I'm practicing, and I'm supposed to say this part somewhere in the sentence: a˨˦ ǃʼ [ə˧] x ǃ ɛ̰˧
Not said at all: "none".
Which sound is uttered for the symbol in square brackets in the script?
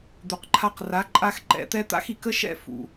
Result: a˧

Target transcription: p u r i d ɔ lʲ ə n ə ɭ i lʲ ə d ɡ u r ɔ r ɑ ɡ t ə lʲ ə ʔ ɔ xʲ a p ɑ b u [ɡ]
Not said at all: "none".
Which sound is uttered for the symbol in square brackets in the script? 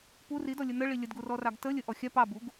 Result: ɡ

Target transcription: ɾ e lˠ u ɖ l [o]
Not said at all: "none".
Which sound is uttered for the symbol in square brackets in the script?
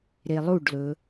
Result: ɵ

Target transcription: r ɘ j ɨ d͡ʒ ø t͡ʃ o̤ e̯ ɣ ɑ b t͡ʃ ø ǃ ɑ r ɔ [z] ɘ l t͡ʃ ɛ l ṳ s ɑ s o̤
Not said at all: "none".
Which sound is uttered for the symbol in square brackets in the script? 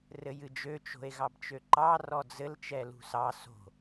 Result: d͡z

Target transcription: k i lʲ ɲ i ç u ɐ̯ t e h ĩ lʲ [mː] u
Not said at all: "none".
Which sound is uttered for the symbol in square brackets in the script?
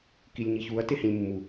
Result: mː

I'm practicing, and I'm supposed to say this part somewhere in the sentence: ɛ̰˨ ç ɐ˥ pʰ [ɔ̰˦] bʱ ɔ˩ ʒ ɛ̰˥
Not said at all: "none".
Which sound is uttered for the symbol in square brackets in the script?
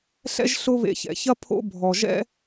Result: o̰˦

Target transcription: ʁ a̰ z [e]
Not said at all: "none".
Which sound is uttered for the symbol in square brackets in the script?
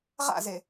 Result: e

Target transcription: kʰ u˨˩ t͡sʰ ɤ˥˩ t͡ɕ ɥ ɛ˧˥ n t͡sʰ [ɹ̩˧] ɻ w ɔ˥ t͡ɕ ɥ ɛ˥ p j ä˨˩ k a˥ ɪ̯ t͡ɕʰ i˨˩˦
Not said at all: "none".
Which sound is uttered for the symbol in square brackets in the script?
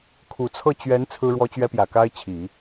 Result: ɹ̩˥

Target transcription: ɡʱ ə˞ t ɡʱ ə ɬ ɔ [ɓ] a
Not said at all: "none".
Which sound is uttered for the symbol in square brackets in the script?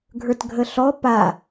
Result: p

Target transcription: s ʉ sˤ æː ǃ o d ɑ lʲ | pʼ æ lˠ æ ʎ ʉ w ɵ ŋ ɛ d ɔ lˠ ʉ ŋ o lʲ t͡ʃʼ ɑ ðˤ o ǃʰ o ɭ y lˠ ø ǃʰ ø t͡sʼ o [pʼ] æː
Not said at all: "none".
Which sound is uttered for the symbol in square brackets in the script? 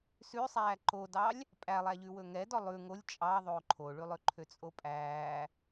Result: pʼ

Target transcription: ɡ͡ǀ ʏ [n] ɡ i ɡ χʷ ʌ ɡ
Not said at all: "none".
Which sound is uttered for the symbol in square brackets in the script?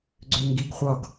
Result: n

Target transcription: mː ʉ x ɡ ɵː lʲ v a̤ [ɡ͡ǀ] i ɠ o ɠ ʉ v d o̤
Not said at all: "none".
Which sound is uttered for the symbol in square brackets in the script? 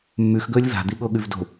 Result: d̪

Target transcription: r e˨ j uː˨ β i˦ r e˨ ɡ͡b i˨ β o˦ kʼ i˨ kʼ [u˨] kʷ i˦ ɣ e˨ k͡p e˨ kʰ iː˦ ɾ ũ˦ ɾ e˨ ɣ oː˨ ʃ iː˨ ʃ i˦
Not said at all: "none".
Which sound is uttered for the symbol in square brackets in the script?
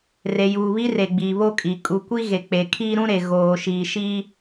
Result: u˨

